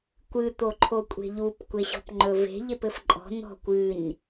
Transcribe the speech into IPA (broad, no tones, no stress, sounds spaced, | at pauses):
kʷ ɨ t̪ o ǃʰ o kʷʼ e̤ ʎ u p kʷ e ɕ ɔ̤ p ŋ͡ǃ ɵ v e̤ ʎ e p ɘ f ǃʼ ɔ̤ n̪ ɔ̤ kʷ ɨ ɲ